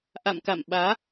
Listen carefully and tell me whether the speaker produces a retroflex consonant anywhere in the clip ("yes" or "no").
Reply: no